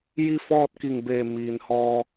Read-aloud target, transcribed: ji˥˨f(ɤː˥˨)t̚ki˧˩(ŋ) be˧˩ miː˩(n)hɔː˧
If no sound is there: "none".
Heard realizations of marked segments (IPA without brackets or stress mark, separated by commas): ɔː˥˨, ŋ, n